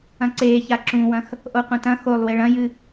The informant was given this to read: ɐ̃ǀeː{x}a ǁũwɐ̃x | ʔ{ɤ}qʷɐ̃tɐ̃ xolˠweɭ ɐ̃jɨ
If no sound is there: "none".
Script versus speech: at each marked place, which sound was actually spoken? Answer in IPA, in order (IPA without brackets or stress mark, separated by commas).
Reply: ç, o